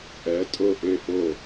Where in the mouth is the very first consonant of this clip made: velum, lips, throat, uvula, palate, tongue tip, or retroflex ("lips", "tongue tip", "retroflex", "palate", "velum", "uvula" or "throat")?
throat